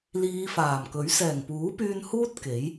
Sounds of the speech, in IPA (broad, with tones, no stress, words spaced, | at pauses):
liː˨˧ faː˨˩mkɵ˨˥ɥ sɛː˨˩ŋpuː˨˥pyː˧n huː˥t̚ ke˨˥j